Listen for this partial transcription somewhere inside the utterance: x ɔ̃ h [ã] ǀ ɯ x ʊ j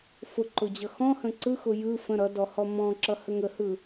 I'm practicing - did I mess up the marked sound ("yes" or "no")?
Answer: yes